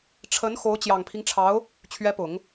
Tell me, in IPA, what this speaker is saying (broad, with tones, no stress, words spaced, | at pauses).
ʈ͡ʂʰə˧˥nxo˧˥ʊ̯ t͡ɕjɑ˨˩ŋpʰi˦ŋʈ͡ʂʰɑ˧˥ʊ̯ | t͡ɕʰɥɛ˧˥pʊ˨˩˦ŋ